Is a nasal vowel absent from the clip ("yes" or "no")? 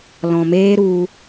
no